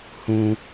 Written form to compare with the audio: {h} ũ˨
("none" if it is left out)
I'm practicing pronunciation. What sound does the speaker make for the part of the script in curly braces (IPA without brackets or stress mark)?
h